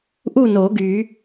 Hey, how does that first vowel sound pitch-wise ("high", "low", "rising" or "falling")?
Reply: falling